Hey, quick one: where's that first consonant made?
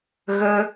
velum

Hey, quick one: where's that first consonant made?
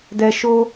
tongue tip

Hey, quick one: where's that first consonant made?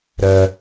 tongue tip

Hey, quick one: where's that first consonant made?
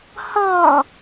throat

